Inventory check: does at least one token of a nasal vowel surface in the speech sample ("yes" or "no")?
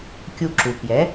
no